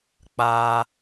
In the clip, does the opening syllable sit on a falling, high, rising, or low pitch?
high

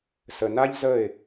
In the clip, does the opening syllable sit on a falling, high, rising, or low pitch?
low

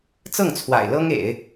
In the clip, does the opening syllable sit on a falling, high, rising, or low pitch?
falling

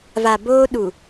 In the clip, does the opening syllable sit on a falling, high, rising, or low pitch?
low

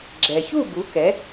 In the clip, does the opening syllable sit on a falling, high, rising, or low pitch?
low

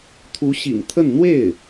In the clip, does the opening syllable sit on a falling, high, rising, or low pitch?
rising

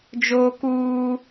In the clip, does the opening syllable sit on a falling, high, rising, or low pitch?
high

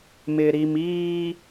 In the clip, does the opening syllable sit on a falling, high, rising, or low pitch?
low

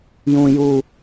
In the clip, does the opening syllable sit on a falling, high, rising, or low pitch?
high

